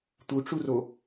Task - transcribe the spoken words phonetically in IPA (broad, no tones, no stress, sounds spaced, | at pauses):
t̪ u ʈ͡ʂ u r o